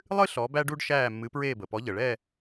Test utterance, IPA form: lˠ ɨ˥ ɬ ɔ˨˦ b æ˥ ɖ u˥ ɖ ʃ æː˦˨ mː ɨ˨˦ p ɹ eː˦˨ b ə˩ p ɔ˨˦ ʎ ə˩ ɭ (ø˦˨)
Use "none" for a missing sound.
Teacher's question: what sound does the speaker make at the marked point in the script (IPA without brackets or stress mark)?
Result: ɛ˦˨